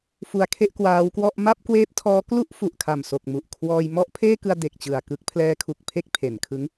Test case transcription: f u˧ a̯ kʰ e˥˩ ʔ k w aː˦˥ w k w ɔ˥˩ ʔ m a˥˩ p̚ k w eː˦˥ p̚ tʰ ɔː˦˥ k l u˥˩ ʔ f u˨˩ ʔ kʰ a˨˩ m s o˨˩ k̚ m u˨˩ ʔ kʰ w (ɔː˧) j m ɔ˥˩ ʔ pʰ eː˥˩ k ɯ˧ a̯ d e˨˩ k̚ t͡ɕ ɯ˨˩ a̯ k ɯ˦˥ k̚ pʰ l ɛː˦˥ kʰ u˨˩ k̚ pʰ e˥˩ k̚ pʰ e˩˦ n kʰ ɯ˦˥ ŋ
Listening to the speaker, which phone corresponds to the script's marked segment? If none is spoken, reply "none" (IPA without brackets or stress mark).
ɔː˧